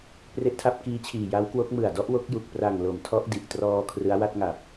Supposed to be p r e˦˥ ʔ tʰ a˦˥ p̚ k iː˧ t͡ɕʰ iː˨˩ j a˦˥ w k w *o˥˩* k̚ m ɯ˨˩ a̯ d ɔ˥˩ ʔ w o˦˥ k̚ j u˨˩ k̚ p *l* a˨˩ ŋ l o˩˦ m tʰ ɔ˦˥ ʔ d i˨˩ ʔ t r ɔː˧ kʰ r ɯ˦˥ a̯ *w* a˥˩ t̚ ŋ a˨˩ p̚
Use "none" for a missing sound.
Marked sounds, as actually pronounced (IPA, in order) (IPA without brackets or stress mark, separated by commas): o˦˥, r, w